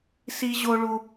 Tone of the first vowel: high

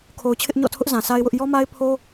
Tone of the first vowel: low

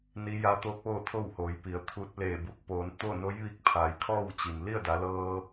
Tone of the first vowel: rising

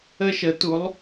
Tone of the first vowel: high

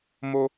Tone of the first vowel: high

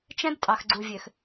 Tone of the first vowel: high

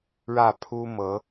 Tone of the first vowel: falling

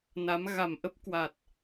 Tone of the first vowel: rising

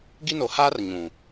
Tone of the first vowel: high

